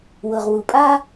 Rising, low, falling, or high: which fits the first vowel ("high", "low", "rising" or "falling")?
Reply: low